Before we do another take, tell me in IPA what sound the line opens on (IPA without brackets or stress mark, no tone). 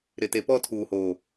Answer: ɾ